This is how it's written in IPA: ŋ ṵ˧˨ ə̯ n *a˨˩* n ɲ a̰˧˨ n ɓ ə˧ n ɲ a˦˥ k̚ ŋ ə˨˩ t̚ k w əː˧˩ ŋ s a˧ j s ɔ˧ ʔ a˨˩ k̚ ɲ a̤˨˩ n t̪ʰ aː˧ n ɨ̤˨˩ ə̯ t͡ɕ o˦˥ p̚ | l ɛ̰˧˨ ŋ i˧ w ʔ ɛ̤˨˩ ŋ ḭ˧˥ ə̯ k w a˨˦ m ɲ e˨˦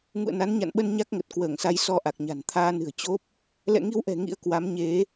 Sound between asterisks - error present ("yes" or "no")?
yes